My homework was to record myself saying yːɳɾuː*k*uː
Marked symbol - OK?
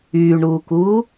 yes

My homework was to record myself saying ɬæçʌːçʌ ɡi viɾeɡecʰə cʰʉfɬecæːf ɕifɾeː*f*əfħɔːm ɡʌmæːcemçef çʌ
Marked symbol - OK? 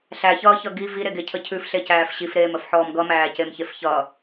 no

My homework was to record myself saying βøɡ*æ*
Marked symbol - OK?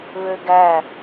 yes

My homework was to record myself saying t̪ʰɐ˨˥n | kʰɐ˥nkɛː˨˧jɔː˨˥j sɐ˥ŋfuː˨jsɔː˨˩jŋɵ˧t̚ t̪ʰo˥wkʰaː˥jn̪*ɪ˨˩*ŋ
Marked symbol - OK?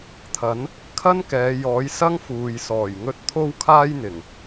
yes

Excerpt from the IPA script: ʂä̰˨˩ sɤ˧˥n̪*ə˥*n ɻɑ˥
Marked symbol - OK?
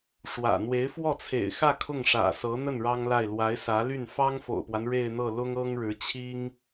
no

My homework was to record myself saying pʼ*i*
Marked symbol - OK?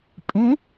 no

